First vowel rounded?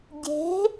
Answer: no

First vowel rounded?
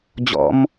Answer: yes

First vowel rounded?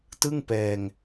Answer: no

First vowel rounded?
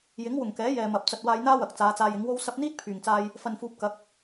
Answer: no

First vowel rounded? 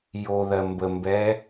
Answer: yes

